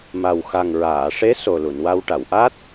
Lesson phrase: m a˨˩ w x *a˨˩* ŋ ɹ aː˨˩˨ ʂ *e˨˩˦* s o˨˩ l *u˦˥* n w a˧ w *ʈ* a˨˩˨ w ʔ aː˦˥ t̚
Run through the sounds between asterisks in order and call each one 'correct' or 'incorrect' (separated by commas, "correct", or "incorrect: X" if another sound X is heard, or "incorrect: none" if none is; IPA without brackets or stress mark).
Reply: correct, incorrect: e˧˥, incorrect: u˨˩˨, correct